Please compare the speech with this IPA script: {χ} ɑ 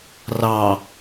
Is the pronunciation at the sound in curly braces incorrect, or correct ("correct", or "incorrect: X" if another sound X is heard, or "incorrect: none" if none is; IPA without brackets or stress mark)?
incorrect: r